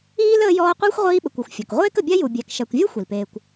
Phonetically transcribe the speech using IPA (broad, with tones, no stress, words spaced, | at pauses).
iː˥ləː˦jɔː˦qʷəː˥xʷ ʁʷiː˦ɓə˨kʷ u˩xʷfʲɔ˩k ʁʷeː˥kə˨bʲa˥ ju˨ bʲæ˨k ʃæ˨kʷvʲɔ˥ xʷi˩lpeː˨kʷ